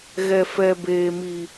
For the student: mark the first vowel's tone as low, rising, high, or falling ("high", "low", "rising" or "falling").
high